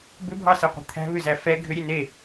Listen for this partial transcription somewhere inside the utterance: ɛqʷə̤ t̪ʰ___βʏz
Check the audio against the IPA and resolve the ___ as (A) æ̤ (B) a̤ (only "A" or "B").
A